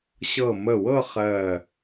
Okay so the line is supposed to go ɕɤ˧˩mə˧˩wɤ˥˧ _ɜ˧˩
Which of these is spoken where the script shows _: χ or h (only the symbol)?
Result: χ